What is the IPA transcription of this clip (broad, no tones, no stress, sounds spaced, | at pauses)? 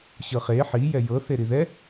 ɕ ɤ χ e ħ i j ɛ j ɤ θ e ɾ i ð ɛ